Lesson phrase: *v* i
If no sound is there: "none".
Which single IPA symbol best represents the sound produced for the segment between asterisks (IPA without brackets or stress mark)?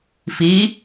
f